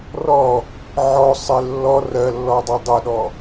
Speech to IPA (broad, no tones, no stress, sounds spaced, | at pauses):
r ɔ | ʕ ɔ sˤ e lː ɔ r ɜ lː ɔ dˤ ɜ dˤ e ɗ ɔ